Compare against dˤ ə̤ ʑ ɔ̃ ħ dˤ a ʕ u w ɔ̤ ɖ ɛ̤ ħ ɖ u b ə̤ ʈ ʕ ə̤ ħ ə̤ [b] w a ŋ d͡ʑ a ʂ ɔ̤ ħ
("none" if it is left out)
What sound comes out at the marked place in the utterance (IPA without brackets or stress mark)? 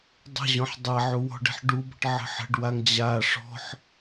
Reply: ɖ